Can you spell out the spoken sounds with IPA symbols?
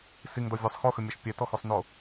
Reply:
siŋdɔ vʲɘsˤ xoxʏmʲɔʃ pʲɛtɔxosˤno

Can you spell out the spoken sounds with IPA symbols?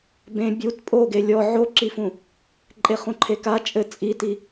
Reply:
bẽ bʲut pʼoɡe lʲɔ ʕoǁifũ | ǃʼeχũǃʰeka t͡ʃʼɘ t͡sʼiti

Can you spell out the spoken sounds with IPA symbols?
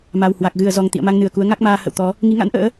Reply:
ma˨˩whwa˨˩k̚ ɣɨ˧˩ə̯zɔ˨˩ŋ t̪ḭ˧˨ə̯ma˧ŋnɨ˨˩ə̯ku˨˦ə̯ ŋa˦˥k̚maː˧ hə̰˧˨wt̪ɔ˨˦ | ŋi˨˦ŋa̰˧˥nʔə̰ː˧˥

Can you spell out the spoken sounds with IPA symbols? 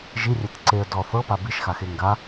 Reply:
ʒirʲɛt ǀeə̯ dɔ θɤpa biʃxaxe ŋɡa

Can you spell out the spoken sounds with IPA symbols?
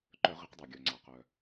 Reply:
ǃœ˧˩˧ʁi˩˧qdˤe˩ ɡʲœ˩ŋ͡ǀa˩ qœ˩

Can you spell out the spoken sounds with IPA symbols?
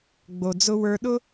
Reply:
ɡ͡bo˨d͡zʊ˧wə˞˧ɗʊ˦

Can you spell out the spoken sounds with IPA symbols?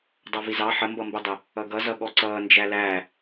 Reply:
dˤɑvizɑ ħəmbʌmbɛdˤə | ʌɡʌzʌ ɠɔǀʌːnd͡ʒæ læ

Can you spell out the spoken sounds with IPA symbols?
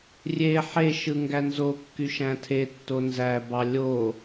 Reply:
rʲe ħeʃɯ ŋɡænzokːy ʃæ̃tʰetːo nzæbɑ lʲo

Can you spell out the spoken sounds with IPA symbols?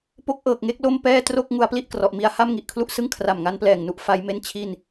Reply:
po˥˩k̚ʔɤː˨˩k̚ŋe˦˥k̚lo˥˩m pɛː˥˩tro˥˩k̚ ŋu˦˥a̯pli˥˩ʔkrɔ˨˩ʔmi˧a̯ ha˥˩mŋi˨˩ʔkʰlu˥˩ʔsɯ˥˩ŋ kʰra˨˩mŋa˦˥nplɛː˨˩ŋnu˦˥ʔ fa˦˥jme˥˩n t͡ɕʰi˥˩n

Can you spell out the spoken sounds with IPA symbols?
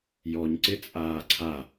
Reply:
jɔɲǀɪt͡sʼaː ǀʰa

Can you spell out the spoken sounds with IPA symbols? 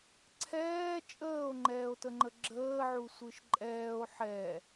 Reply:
ǀʰɛː t͡ʃʼəːo̯ŋ͡ǃɛːo̯təŋ͡ǃə ɡ͡ǁəːʕu sʷɯʃǃʼɛːo̯ ħɛ

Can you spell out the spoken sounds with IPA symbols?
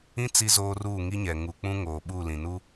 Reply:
ĩ˦ t͡si˦zoː˦ruː˦˨ ŋi˦ɲɛ˨ ŋu˨k͡pũ˦ ŋoː˨ ɓuː˦˨lĩ˨ nu˦

